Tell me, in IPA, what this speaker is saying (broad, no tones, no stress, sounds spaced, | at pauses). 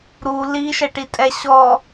ɾ u l i ʃ ɛ ʈ i tʼ ɛ ɕ ɔ